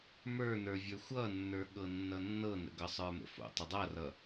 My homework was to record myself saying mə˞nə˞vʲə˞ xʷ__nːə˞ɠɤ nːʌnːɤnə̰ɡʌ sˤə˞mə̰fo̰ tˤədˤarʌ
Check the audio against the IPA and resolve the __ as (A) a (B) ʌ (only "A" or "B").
B